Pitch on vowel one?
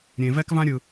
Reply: low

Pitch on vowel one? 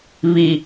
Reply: low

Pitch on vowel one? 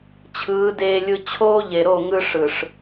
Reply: rising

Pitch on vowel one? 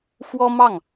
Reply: high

